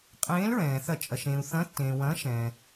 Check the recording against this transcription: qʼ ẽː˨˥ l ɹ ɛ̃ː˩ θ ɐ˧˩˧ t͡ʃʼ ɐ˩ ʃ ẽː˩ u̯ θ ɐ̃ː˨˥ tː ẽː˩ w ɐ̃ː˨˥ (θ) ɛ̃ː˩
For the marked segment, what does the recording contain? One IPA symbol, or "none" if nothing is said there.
ʃ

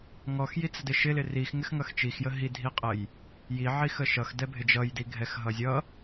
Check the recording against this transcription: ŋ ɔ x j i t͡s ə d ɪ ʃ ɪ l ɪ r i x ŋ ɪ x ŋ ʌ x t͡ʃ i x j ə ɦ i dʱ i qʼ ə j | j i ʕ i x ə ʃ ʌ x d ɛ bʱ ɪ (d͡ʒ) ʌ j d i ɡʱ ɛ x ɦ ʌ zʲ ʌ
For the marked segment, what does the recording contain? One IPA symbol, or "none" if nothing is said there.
d͡ʒ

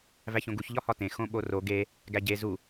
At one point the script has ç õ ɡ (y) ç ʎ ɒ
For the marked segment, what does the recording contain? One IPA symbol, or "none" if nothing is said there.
u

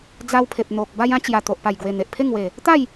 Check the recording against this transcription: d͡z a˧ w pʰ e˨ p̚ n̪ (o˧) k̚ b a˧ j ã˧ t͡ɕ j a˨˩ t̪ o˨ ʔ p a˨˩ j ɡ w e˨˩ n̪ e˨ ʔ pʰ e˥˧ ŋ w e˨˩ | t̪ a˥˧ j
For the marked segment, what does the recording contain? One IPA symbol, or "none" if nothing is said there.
o˨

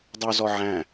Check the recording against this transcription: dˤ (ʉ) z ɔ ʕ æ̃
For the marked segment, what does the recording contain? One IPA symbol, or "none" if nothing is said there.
u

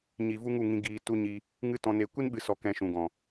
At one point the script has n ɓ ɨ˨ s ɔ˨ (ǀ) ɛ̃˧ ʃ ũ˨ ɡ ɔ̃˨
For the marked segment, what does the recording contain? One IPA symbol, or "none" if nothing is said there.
k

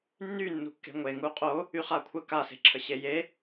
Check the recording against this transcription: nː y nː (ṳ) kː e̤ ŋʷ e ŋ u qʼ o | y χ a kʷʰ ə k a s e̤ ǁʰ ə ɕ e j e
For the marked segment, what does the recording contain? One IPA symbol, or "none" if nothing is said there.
ṳ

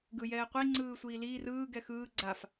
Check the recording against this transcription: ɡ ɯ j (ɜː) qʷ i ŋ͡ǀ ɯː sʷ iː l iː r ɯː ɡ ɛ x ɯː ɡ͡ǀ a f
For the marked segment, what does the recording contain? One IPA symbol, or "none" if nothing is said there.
ɛː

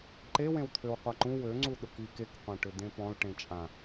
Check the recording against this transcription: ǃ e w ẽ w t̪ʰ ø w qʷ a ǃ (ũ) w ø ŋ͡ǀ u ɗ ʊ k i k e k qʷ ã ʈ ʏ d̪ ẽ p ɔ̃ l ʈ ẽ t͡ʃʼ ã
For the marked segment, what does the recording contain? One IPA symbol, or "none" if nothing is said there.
ũ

